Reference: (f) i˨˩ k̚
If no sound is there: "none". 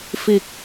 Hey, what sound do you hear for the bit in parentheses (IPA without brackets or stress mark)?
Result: f